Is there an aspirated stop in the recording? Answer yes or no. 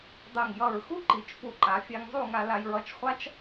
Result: no